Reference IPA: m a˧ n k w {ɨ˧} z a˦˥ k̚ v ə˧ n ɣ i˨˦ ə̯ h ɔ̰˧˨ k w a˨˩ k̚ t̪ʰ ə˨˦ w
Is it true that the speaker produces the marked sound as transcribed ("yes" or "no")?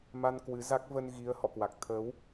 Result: no